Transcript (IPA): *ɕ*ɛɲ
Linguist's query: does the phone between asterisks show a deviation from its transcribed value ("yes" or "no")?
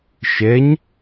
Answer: yes